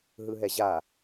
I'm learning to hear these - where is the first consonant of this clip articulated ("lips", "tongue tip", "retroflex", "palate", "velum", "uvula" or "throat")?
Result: throat